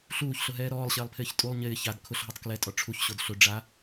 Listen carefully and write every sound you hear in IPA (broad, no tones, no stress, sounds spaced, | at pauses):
ɬ uː ç ɬ ʊ ɦ ɛː ɾ ɔː lˠ ɕ ɪː lˠ pʰ ɪː ç tʼ u lˠ ɲ ɪː ç a d kʰ ʊ ɬ ɦ ɔ tˤ k l ɛ tʼ ɔ ʈ͡ʂʰ u ç ɕ o d ɬ ʊ ɖ͡ʐ a